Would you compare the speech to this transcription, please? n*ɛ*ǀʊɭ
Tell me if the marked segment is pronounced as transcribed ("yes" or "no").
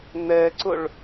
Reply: yes